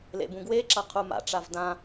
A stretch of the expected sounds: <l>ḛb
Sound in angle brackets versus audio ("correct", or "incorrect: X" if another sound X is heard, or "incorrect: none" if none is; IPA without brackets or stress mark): correct